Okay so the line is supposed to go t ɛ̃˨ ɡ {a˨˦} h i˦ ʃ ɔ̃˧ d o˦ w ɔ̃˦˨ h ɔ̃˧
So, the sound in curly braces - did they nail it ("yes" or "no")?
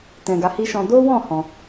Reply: yes